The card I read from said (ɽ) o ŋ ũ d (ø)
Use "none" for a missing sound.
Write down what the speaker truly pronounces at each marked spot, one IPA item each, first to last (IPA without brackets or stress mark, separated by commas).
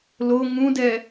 l, ɛ